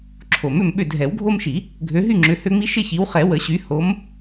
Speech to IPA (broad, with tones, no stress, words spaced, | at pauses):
ǁʰo˨˩˦mʏ˥˨mɓʏ˥˨ dʱɛ˨˩˦wɡʱo˦mʃi˨˩˦ | ɡʱø˨˦ ɦy˥˨ŋ͡ǁʏ˨˦hø˦ ŋ͡mi˦ʃɪ˥˨çi˨˦wχɛ˨˩˦ wə˨˩˦ɕy˨˦ ho˨˦m